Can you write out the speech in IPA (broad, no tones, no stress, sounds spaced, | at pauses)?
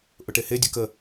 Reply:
ʔ ʊ ʈ e h e dʲ ɯ k ə